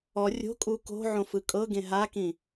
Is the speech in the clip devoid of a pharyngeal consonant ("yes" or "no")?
no